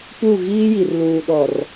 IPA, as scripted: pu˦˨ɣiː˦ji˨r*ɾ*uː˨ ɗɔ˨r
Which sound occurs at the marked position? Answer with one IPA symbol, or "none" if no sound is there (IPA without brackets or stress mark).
l